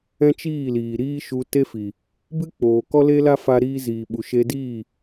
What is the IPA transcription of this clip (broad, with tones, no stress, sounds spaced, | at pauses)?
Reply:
ɛ̃˦ t͡ʃ iː˦˨ l iː˨ ɾ iː˦ ʃ u˧ t e˦ f i˨ | b ɨ˦ k͡p oː˨ k ɔ˦ l e˦ l a˦ f a˦ ɾ iː˦ z iː˨ ɓ u˨ ʃ e˧ d iː˦˨